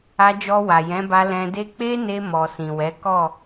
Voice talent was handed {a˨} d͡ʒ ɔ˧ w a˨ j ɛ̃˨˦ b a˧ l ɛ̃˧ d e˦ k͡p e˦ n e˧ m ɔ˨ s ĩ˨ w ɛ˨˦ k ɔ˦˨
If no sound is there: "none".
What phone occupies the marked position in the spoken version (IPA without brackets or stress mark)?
a˧